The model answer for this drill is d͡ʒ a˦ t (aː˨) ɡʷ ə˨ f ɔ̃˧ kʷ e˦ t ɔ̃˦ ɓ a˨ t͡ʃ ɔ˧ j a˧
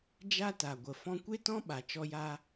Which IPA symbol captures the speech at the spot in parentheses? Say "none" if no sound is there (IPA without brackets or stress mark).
a˨